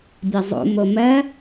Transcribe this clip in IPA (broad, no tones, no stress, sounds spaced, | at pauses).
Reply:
bʲ ɐ zˤ o̰ m o m ɜ